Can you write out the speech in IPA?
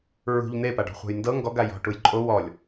ɹ ṳ ʎ n̪ e p a ɖ ɔ̤ χʷ a̤ j n d ɤ ŋ ɡ ɔ ɡ a j ɔ̤ ʈ u j ǃʼ o w ɔ lʲ

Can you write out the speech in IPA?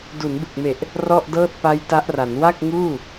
d u˩˦ n b ɯ˨˩ k̚ m e˨˩ ʔ | r ɔ˥˩ ʔ d ɤː˥˩ t̚ p a˦˥ j t a˦˥ ʔ r a˩˦ n w a˥˩ k̚ ŋ uː˥˩

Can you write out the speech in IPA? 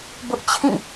b ʊ˦ ʔ t͡ɕʰ ĩ˦˨

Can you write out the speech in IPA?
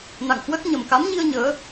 n a̰˧˨ ŋ h w ə˦˥ t̚ ɲ ə˨˩ m k a˨˦ m ɲ i˧ ə̯ ɲ əː˨˦

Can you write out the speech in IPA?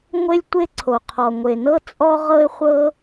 ŋʷ e˥ lʲ tʷ e˥ ǀʰ o˩ qʰ ɔ˩ ŋʷ e˩ n ɤ˥ t͡sʼ ɔ˥ ʁ ɤ˥ ɪ̯ χʷ ɤ˥

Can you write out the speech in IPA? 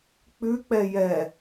k͡p ʉ k͡p ɛ j ɛ

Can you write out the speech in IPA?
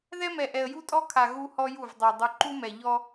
ð ɛ˦ m ɛ˨ ʔ ɛ˨ ə̯ j u˦ tʼ ɔ˦ kʰ a˨ ɣ u˦ h ɔ˦ j u˦˨ v dˤ ɛ˨ dˤ u˨ ǃ u˦ m ɛ˨ ʎ ɔ˦

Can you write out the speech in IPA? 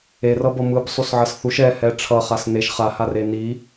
e r ʌ b ʌ m ɯ b sˤ u s ʕ ʌ s θ u ʃ ɛ h ɛ ʈ͡ʂʰ ʌ χ a s n e ʃ χ a h a r e n i

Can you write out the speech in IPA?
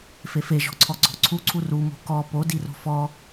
f e f e ʒ ɔ̤ ǀʰ ɔ ɡ͡ǀ ɔ̤ ǀʰ u ǀʰ u r u m o̤ k ɔ p o d i r o̤ f ɔ

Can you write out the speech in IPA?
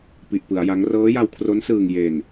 p i˨˩ ʔ p ɯ˩˦ a̯ j a˦˥ ŋ r ɤː˦˥ j a˧ w kʰ r o˦˥ n s ɯː˨˩ ŋ j e˨˩ n

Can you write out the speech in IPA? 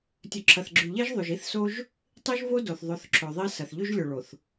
tʲ ɵ˨ ǁʰ ɐ˨ θ ɡ͡ǁ ʉ˨ ʎ e˦ ʒ ðˤ ʉ˨ ʒ i˦ θ s o˦ ʒ | tˤ i˦ ʒ v o˦ d o˨ θ ðˤ o˨˦ θ ǁʰ ɵ˨ ðˤ i˦ s ɐ˨ θ ʎ ʉ˦ ʒ lʲ ɵ˨ ɭ o˨ θ

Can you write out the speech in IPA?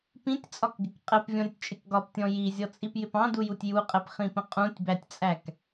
p ĩ tʲ t͡sʼ ɒ k ɡ ɪ k qʼ ɛ p vʲ ɔ̃ ɾʲ ʊ tʲ t͡ʃʼ ɪ k ɡ ɒ p tʲ ɔ̃ j i zʲ ɔ t͡sʼ i p j ɪ p ɑ̃ d u j u tʲ j u qʼ ɛ p χ ĩ p ə̃ qʼ ũ tʲ b æ tʲ t͡sʼ æ k

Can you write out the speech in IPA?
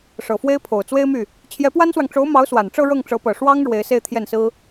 ʂ ɤ˨˩ f w e˥ ɪ̯ pʰ o˨˩ ʊ̯ t͡s w e˥ ɪ̯ m y˥˩ | t͡ɕʰ j ɛ˧˥ p w a˥ n s w ɑ˨ ŋ ʈ͡ʂ o˧˥ ʊ̯ m ɑ˧˥ ʊ̯ s w a˨˩ n ʈ͡ʂ ɤ˥˧ ɻ ɤ˥˩ ŋ ʈ͡ʂ ɤ˧˥ p ɤ˨˩ ʂ w ɑ˥ ŋ ɻ w e˧˥ ɪ̯ s e˥˧ ɪ̯ t̪ʰ j ɛ˥˩ n s ɹ̩˥

